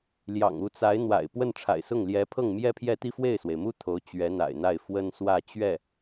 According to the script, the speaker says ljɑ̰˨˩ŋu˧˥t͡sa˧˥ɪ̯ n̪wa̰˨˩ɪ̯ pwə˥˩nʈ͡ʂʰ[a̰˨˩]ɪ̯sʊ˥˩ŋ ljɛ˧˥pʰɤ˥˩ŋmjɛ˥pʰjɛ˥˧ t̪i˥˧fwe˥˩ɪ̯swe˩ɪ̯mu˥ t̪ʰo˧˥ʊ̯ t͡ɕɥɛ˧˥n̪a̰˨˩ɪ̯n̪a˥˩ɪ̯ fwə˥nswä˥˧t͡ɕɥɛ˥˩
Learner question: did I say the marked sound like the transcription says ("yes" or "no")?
yes